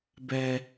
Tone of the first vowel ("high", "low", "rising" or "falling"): low